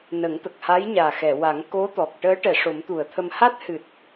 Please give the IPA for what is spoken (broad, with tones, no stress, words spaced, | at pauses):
nə˨˩˦ŋt̪ə˨˩k̚ha˧˥jɲaː˨˩ xɛ˨˩˨wa˨˩˦ŋ ko˧˥t̪ɔ˨˩k̚ ʈəː˧˥ ʈɛ˨˩˨ ʂo˨˩˦mt̪u˨˩˨ə̯t̪ʰə˧m ha˦˥t̚hɨ˨˩t̚